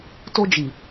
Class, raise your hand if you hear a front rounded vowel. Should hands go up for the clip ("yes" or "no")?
no